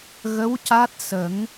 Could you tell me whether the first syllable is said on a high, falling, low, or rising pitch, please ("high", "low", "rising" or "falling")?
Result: rising